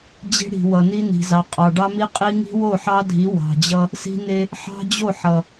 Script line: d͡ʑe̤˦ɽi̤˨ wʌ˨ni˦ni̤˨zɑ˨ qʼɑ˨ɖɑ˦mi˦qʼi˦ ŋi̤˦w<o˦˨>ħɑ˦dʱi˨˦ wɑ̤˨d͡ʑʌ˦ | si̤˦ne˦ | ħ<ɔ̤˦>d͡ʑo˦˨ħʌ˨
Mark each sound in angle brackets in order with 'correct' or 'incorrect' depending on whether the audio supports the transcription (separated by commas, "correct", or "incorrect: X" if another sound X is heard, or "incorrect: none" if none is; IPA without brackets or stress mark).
correct, incorrect: ɑ̤˦